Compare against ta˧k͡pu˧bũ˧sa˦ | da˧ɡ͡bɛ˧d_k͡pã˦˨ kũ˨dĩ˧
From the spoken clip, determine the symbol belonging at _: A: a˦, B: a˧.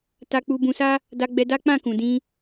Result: A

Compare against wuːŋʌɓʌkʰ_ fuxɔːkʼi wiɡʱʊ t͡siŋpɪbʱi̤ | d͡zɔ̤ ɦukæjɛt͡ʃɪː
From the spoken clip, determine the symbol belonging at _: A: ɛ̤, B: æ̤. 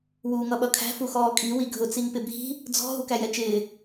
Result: B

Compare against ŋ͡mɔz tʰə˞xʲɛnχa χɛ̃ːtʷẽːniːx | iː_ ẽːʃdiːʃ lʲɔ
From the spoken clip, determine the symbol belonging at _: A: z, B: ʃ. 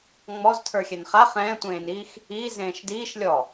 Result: A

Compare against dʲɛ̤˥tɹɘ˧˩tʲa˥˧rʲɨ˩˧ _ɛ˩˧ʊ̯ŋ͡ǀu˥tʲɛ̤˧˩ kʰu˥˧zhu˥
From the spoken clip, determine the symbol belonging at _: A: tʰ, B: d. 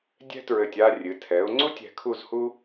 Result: A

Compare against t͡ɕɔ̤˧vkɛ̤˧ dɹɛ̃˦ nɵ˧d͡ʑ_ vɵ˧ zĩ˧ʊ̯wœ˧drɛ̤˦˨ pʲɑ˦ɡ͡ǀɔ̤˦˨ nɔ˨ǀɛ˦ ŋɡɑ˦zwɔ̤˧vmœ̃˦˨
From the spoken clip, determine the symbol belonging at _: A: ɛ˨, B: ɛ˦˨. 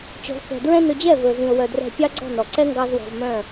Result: B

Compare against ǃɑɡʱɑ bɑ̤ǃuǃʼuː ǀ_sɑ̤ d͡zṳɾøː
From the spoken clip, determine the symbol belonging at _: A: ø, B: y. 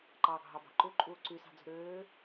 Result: B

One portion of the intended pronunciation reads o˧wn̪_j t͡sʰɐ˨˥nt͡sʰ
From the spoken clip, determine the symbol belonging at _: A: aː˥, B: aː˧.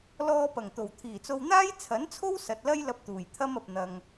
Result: A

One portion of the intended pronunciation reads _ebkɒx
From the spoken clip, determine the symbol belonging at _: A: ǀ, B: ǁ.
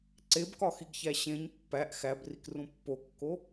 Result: A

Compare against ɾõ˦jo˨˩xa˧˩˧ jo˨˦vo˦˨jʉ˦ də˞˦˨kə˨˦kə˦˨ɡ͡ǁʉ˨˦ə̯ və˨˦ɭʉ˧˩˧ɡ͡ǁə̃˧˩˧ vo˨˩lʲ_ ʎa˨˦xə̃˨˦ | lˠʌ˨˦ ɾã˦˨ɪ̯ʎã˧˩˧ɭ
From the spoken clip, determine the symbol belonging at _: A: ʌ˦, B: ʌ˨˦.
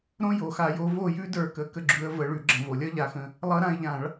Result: A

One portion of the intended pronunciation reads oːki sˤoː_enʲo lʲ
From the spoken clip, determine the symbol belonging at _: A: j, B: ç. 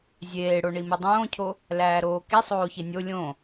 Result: B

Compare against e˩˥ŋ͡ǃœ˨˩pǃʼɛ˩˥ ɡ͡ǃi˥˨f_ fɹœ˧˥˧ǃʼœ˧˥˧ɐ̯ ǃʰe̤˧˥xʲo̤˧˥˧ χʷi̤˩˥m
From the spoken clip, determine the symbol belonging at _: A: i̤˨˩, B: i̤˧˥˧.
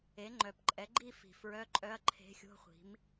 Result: A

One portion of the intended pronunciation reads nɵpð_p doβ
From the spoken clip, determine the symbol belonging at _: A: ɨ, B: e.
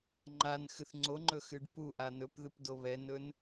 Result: A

